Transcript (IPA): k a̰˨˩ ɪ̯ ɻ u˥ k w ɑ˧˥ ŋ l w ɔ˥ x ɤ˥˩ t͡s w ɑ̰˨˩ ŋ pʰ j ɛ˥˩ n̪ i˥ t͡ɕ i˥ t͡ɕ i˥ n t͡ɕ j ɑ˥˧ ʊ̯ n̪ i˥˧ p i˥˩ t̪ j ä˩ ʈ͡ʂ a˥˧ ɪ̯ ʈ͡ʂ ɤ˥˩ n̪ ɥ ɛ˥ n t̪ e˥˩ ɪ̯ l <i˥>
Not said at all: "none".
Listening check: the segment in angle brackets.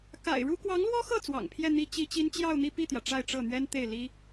i˥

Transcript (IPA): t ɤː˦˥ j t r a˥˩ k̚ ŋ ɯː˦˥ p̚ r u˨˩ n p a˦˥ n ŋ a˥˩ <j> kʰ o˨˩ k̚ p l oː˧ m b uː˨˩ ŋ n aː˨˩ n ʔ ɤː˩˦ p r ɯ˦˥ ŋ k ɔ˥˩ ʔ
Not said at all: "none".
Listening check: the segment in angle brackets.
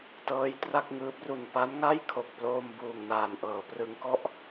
j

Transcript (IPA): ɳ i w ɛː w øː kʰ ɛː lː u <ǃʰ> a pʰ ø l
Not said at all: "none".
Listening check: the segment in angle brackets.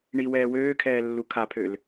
kʰ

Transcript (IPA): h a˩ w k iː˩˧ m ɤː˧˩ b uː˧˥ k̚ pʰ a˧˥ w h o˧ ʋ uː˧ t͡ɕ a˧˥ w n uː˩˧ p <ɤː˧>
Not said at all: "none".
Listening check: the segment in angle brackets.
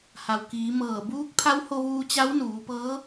ɤː˧˥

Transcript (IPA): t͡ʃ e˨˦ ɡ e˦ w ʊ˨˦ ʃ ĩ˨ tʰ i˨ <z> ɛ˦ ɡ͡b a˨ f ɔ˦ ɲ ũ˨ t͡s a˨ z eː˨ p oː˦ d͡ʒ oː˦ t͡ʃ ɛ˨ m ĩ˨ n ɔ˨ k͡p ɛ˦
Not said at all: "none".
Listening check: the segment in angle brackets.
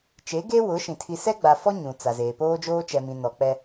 s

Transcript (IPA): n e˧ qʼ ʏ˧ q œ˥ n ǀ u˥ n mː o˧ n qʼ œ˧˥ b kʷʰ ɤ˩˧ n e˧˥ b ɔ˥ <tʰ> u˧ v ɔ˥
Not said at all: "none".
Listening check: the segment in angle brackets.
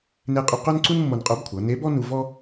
n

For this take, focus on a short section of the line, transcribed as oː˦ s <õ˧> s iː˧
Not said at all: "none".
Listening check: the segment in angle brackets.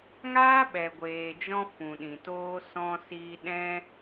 ɔ̃˧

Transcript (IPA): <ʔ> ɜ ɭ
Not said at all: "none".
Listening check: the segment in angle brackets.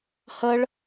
h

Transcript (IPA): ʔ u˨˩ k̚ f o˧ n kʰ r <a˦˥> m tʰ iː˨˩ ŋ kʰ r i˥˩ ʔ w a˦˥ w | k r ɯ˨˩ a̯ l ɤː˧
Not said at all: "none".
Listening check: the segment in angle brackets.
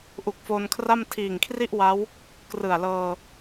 a˥˩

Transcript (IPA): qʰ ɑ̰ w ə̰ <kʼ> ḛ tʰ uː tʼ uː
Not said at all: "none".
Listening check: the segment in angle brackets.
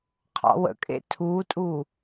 kʼ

